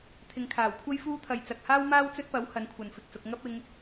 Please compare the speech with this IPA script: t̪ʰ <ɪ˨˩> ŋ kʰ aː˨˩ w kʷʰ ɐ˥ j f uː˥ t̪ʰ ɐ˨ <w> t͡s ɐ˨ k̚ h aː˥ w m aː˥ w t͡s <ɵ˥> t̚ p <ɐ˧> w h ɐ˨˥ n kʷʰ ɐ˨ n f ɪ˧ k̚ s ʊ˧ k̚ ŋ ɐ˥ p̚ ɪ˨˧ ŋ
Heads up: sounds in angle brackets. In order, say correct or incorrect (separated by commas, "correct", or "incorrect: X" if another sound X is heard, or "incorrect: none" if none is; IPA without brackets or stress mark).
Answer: incorrect: ɪ˨, incorrect: j, correct, incorrect: ɐ˨˥